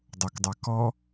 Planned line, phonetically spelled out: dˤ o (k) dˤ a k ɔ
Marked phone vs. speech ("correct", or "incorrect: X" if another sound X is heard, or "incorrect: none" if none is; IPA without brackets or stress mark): correct